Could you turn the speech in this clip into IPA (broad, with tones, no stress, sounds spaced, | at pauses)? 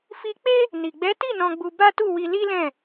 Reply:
f i˧ k͡p e˦ | n i˨ ɡ͡b ɛ˨˦ t i˦˨ n ɔ̃˧ ɡ͡b u˧ b a˦ t u˦˨ w i˧ l i˦ l ɛ̃˦˨